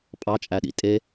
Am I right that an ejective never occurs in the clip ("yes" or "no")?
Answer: no